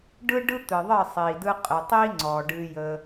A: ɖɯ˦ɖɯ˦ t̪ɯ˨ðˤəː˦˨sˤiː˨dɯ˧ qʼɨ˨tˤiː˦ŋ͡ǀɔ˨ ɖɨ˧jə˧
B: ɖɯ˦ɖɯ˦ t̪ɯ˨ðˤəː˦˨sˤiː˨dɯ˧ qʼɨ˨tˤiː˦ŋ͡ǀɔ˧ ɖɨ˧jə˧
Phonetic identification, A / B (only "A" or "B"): A